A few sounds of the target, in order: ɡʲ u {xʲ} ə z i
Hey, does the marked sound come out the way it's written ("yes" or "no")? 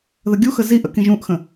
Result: no